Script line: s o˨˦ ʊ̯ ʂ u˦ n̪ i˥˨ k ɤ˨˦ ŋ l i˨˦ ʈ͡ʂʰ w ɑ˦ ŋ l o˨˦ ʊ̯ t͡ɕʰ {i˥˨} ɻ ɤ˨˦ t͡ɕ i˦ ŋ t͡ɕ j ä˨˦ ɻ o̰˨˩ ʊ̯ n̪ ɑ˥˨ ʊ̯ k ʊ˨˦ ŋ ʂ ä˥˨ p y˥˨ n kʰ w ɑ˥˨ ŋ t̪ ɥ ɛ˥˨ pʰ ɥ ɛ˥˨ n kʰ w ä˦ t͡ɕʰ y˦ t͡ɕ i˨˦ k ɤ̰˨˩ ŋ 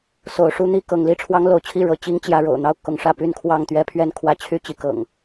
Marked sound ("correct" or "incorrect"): correct